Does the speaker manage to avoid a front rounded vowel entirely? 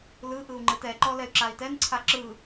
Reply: no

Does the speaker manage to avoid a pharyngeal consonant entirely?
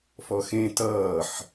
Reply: no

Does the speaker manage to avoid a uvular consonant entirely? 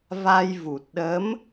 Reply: yes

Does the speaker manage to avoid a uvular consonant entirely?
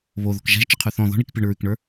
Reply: no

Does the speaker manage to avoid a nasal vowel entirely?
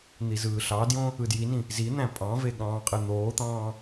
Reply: no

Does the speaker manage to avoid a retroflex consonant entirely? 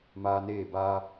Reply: yes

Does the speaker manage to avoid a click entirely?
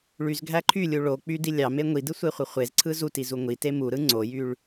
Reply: no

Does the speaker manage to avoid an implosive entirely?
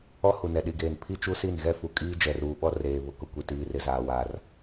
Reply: no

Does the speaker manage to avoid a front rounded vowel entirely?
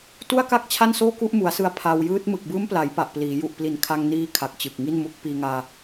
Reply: yes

